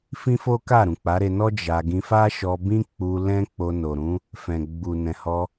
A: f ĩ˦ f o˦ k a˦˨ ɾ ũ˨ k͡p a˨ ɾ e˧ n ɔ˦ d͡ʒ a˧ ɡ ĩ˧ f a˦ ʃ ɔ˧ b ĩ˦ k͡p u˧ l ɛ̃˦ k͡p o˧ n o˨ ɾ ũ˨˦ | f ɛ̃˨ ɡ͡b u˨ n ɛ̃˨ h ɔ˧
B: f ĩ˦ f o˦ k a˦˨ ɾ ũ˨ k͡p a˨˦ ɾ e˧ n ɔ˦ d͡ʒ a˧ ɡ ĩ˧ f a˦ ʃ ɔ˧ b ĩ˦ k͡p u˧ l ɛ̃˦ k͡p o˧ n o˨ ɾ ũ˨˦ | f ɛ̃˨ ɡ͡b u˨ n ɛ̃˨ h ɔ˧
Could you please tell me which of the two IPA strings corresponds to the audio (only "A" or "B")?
B